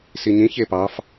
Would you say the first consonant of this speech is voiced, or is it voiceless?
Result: voiceless